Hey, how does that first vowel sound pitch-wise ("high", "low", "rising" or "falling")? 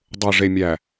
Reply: low